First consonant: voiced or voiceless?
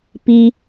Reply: voiceless